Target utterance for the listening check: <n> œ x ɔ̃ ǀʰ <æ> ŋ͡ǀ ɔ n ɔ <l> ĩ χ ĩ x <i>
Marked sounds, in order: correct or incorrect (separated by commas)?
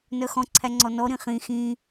correct, correct, incorrect, incorrect